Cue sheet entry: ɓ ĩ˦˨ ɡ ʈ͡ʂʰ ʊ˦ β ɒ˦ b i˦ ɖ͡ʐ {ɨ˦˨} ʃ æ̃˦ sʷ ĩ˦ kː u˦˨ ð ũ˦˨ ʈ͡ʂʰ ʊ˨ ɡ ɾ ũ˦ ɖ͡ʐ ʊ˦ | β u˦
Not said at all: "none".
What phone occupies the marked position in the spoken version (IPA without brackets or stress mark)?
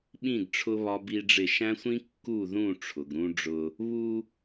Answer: ɪ˦˨